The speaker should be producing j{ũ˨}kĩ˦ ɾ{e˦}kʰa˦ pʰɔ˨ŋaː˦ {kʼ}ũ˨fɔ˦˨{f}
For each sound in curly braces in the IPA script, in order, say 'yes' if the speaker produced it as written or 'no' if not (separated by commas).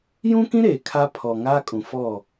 no, no, yes, no